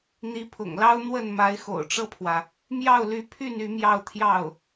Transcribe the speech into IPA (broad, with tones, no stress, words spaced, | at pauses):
n̪i˧˥pʰʊ̰˨˩ŋlɑ˥ʊ̯ n̪wə˥˩n ma˧˥ɪ̯xo̰˨˩ʊ̯ʈ͡ʂɤ˥˩pʰwä˩ | mjɑ˥˩ʊ̯ly˧˥pʰy˥˩n y˧˥mjɑ˥˧ʊ̯t̪ʰjɑ˥˩ʊ̯